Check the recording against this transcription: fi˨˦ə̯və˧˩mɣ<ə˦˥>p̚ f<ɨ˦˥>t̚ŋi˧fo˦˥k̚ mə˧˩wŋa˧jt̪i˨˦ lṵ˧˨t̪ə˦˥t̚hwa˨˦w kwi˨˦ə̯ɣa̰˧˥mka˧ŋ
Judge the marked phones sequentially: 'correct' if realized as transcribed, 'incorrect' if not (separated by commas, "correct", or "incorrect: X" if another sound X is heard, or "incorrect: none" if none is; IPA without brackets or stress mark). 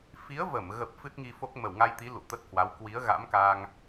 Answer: incorrect: ə˨˩, correct